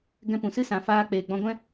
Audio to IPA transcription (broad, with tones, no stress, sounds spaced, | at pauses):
ɡ ɛ̃˦ p ũ˨ s ɨ˦ s ã˨ f aː˧ k͡p eː˨ ɡ͡b ɔ̃˧ ɡʷ ɛ̃˦